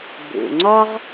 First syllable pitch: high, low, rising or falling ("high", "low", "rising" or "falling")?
low